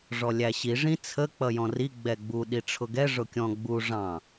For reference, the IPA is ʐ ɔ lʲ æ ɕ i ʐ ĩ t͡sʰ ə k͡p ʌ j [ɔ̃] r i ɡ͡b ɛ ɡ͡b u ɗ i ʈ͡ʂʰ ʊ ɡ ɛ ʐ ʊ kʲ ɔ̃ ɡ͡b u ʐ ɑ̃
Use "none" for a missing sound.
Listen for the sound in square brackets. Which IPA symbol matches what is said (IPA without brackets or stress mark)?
ɔ̃